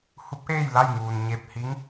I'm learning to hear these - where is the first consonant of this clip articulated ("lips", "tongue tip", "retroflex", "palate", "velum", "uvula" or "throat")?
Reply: throat